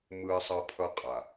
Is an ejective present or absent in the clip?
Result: present